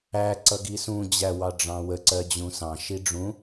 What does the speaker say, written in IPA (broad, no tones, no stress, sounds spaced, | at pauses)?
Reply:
æ ǀ ʌ ɡ i s ũ d͡ʑ æ w ɑ ɖ͡ʐ ɑ̃ w ə ǀ ɜ d͡ʑ ũ s ɑ̃ ʃ i ɖ͡ʐ ũ